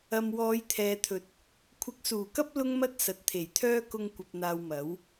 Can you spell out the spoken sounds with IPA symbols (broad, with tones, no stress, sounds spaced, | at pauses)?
ɐ˧ m w ɔː˨˧ j t̪ʰ ɛː˨ t̪ʰ ɵ˨˥ t̚ | kʷʰ ɪ˧ k̚ s uː˨˩ k ɐ˥ p̚ l ʊ˥ ŋ m ɐ˥ t̚ s ɐ˨ t̚ t̪ʰ e˨˩ j t̪ʰ œː˥ k ʊ˧ ŋ kʷ ɐ˧ p̚ n̪ aː˧ w m ɐ˨˥ w